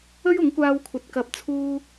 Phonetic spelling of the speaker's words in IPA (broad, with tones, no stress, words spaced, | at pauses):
ɵ˥ɥʊ˨˥ŋkʷaː˧wkʷʰɐ˨t̚ kɐ˨˥p̚t͡sʰuː˧